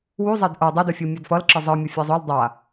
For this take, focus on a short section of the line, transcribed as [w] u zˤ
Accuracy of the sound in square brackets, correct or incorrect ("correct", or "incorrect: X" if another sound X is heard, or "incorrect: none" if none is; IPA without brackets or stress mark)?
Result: correct